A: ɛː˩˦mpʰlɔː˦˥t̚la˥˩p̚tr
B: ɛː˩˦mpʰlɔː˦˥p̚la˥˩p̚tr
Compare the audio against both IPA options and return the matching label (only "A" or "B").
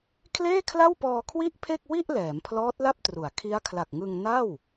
A